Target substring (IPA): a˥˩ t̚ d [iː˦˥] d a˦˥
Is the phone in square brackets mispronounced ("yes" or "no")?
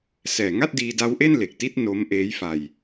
yes